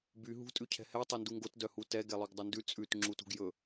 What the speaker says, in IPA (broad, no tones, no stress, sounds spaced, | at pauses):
b y ɦ ṳ tʼ ʉ cʰ ɛ̤ h ɛ tˤ e n d u ŋ ɡ o t d œ h u t ɛ ɡ ɛ lˠ o ɡ dˤ ɵ n d ʉ t͡sʼ ʉ t ŋ͡ǁ u t ṳ ɡ j ɵ